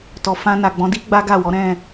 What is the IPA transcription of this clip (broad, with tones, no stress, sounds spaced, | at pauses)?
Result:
t ɔ˨ f ã˧ n a˨ ɡ͡b ɔ̃˨˦ d i˦ ɡ͡b a˦ ɡ a˦˨ w ɔ˨˦ ɾ ɛ̃˦˨